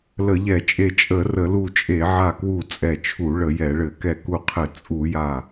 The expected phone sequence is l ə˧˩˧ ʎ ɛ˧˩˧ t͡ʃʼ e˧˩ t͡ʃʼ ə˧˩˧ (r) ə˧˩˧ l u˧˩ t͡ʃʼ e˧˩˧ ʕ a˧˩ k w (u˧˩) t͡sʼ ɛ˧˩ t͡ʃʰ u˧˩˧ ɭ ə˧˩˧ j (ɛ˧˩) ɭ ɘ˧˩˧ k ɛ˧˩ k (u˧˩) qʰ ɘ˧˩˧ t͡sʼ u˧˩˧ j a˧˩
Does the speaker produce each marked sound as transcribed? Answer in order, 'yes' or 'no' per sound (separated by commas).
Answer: yes, yes, no, yes